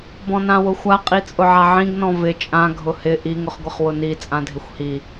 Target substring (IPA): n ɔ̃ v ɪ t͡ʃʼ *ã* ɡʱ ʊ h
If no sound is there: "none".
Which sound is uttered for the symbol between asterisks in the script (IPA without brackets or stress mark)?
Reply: ã